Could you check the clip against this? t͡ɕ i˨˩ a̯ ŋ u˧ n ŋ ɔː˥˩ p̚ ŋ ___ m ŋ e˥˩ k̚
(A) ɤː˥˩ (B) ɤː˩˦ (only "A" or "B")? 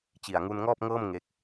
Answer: A